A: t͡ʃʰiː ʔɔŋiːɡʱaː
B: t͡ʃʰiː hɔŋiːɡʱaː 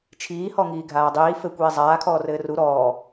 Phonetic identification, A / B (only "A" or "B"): B